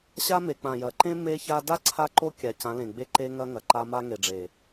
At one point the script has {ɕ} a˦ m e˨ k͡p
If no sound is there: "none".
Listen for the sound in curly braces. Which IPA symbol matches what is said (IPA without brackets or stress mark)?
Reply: ɕ